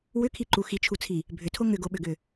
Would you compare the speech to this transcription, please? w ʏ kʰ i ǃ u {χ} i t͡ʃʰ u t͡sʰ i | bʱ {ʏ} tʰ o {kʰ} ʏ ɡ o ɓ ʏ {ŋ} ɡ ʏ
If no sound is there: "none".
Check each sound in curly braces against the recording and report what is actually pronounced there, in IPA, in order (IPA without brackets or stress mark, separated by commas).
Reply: x, ʏ, ŋ, none